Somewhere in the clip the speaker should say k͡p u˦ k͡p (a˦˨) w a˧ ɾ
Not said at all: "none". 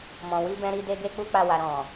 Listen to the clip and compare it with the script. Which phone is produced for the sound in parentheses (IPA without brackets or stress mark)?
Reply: a˦˨